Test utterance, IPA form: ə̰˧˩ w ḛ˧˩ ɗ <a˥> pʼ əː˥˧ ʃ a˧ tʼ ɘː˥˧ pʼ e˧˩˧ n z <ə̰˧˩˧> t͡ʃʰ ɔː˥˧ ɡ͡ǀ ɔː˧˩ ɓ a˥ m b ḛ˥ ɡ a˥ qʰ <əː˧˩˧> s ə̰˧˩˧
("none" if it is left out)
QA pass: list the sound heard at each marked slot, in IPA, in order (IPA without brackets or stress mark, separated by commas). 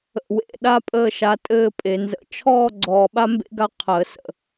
a˥, ə̰˧˩˧, əː˧˩˧